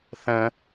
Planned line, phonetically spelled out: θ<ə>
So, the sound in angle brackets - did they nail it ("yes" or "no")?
no